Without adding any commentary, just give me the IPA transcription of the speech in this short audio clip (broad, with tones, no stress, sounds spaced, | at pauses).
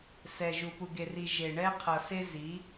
s ɛ˨ ʒ u˨ p u˨ ɡ e˨ r i˨ ʒ e˨ ɳ ɛ˦ qʰ ʌ˨ s e˦ z i˨˦